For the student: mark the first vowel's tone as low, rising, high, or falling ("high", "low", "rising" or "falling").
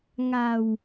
low